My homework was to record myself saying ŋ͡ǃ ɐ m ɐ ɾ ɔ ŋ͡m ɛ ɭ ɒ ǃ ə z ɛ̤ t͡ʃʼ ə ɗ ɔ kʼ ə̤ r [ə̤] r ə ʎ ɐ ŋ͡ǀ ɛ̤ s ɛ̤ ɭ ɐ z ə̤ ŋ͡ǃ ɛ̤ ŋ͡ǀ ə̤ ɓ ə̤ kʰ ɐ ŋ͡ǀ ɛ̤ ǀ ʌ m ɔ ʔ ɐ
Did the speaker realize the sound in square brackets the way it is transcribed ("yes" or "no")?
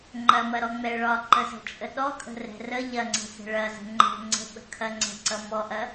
no